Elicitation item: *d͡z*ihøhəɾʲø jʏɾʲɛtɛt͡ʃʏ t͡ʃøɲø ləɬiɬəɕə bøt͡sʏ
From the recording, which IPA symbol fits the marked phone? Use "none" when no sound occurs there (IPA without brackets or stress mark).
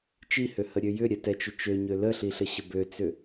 t͡ʃ